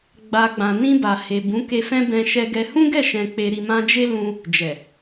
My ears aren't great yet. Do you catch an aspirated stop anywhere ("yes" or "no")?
no